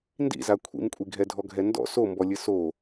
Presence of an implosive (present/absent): absent